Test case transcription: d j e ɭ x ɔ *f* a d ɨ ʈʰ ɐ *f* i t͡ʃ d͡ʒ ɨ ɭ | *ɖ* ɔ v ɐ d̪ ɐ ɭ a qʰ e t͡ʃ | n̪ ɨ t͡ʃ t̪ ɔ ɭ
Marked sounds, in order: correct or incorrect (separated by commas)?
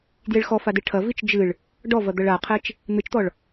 correct, incorrect, correct